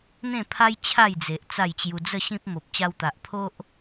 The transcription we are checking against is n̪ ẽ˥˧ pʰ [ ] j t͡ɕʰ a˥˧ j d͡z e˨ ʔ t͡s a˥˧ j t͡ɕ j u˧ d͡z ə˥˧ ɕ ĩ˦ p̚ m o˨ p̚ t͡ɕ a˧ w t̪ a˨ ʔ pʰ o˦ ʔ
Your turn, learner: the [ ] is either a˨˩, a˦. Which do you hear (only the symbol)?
a˦